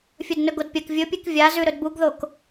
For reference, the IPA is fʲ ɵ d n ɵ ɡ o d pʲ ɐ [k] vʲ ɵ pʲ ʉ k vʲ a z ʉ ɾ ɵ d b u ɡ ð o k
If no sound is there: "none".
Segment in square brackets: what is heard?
k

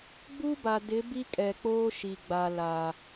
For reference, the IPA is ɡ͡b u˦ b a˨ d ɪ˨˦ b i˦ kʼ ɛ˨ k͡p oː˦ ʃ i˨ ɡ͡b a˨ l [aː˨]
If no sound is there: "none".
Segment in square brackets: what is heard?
aː˨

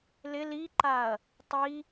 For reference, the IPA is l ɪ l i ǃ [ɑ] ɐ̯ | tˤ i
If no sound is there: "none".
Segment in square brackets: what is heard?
a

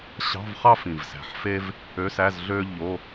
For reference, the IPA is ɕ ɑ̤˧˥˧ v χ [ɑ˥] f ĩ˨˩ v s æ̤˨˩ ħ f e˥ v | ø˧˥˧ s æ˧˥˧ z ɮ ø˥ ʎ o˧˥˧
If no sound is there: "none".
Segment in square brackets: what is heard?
ɑ˥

